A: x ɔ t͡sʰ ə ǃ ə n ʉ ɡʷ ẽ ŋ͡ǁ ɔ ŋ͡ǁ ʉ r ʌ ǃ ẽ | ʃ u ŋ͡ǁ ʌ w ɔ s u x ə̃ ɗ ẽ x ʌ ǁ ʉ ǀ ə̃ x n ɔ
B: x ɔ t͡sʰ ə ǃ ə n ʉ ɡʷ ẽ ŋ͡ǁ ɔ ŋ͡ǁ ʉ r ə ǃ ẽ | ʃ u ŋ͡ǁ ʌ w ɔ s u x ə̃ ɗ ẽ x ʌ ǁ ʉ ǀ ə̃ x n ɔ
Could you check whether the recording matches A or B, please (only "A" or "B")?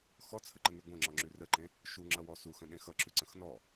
B